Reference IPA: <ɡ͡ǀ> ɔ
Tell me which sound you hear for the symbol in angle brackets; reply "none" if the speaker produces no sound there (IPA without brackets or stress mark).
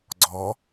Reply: ɡ͡ǀ